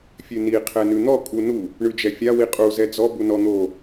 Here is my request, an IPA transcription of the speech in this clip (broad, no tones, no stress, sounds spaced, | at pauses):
fʲ ʉ n i qʰ ɛ n ʉ n̪ ɔ kʼ u n u | ɳ ʉ d͡ʒ ɛ fʲ a w i qʼ u z ɛ d͡z ɔ b u n ɔ n̪ o